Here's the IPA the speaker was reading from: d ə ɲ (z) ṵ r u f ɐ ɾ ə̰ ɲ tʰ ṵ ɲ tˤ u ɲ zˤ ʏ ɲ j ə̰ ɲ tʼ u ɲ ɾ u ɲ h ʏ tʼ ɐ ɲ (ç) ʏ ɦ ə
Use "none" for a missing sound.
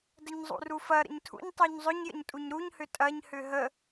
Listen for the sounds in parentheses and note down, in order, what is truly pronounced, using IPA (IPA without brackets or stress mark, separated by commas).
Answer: zˤ, h